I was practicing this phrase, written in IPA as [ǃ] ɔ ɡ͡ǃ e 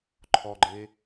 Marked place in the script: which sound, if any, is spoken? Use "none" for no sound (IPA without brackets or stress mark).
ǃʰ